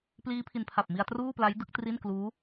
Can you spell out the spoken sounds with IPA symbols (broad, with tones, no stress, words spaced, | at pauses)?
pliː˦˥pʰi˧npʰa˨˩p̚ mi˧a̯truː˥˩pla˦˥j dɯ˦˥k̚tri˥˩nkluː˦˥